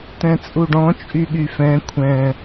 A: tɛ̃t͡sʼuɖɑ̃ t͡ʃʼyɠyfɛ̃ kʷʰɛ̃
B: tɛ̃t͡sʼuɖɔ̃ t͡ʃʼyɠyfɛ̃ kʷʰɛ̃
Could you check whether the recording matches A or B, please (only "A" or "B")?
B